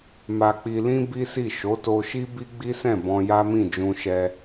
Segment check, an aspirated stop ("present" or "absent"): absent